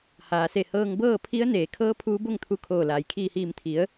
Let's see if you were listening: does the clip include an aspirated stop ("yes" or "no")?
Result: yes